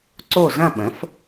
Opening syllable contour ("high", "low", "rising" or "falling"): falling